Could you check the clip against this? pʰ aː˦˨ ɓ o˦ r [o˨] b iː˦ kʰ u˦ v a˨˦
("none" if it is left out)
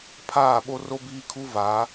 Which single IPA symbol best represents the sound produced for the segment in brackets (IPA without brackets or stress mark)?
o˦